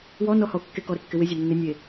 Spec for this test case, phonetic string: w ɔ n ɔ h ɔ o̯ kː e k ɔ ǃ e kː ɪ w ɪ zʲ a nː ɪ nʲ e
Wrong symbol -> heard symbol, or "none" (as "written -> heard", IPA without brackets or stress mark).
ǃ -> ɾ